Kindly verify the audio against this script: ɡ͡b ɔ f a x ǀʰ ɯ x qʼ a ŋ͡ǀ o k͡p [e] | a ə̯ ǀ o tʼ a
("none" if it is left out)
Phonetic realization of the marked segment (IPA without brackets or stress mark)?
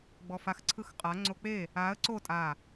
e